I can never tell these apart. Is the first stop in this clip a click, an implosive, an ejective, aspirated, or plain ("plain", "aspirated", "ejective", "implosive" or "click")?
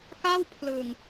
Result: plain